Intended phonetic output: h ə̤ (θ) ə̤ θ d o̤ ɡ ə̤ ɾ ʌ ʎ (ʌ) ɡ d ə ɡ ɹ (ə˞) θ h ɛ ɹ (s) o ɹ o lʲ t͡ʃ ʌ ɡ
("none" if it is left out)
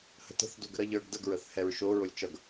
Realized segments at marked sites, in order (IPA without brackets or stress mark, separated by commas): t, ə˞, ə, ʃ